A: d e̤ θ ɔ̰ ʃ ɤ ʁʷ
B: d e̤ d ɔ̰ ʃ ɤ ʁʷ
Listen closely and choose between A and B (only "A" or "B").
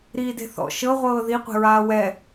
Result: A